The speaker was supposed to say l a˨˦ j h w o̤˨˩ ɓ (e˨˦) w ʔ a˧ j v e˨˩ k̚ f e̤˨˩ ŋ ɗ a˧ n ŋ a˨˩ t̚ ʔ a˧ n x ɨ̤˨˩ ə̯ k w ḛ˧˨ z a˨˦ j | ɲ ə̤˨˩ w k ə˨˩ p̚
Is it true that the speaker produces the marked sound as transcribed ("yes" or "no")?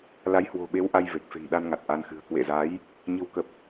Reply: yes